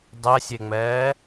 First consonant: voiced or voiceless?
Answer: voiced